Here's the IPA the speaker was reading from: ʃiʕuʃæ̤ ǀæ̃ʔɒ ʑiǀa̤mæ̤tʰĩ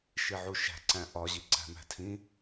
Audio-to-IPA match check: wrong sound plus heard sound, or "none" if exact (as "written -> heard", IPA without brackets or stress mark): a̤ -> æ̤